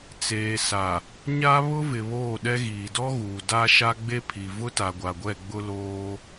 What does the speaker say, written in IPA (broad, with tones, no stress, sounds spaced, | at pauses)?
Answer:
t͡s eː˨ s a˨ | ɲ a˦ β ʊ˦ v ɪ˨ β oː˦˨ ɗ ɛ˦ ɣ iː˨ d ɔ˦ ɣ uː˨ d a˦ ʃ a˦ ɡ͡b e˦ pʰ i˨ v ʊ˦ t a˨ ɡʷ a˨ ɡʷ ɛ˦˨ ɡ͡b ʊ˦ l oː˦